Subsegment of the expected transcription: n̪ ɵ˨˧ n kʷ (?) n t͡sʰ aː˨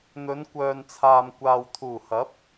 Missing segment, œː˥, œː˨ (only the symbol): œː˨